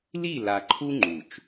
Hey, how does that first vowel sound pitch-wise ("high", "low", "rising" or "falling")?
falling